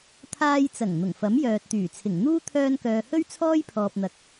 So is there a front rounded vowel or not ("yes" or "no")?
yes